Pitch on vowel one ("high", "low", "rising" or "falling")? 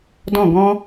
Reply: falling